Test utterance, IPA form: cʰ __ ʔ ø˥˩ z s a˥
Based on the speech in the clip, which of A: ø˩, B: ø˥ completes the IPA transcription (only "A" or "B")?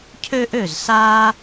B